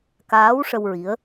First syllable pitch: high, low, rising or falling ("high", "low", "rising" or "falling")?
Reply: rising